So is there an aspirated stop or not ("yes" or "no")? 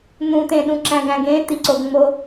no